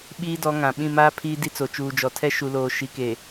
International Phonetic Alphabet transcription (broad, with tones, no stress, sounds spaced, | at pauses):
ɓ iː˦ d ɔ˨˦ ŋ ã˨ ɓ ĩ˦˨ m aː˦ pʰ iː˦ d i˦ t͡s o˨ t͡ʃ uː˨ d͡ʒ ɔ˨ tʰ ɛ˦ ʃ u˨ l oː˨ ʃ i˨ k e˨